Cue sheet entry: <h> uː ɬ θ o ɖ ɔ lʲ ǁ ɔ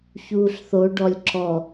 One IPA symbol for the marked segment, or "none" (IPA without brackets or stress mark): ç